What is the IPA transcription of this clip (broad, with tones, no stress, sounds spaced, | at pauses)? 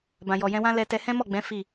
b ã˨ j ɔ˨ j ɛ̃˧ w ã˦ l ɛ˧ t ɛ˧ h ɛ̃˦ m ɔ˦˨ ɡ͡b ɛ̃˨˦ f i˦˨